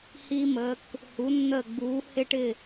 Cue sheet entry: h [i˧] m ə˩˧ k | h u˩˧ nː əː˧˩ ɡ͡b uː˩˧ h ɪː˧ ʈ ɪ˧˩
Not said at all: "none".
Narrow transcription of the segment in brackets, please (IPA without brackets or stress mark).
i˧